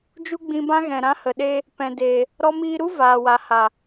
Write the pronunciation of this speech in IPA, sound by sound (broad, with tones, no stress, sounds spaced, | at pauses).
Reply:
d͡ʒ u˦ ɡ͡b ĩ˧ b ã˦ ɣ ɛ̃˨ ɾ ã˧ h ə˨ ɗ e˧ | p ɛ̃˨ d e˨ | ɾ ɔ˧ m iː˧ ɾ u˦ v aː˨ w a˨ h a˨